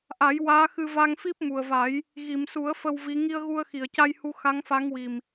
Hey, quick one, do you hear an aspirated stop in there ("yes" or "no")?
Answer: no